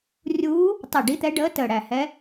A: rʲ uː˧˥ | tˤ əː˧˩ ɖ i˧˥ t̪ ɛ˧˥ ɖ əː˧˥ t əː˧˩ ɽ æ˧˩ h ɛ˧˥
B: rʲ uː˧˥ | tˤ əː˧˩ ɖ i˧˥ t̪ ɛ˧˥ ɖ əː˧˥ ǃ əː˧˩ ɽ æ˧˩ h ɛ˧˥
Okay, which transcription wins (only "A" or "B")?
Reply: A